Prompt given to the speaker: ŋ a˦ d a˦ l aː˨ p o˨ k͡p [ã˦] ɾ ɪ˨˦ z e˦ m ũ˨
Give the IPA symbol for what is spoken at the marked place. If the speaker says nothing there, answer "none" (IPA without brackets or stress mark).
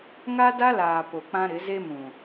ã˦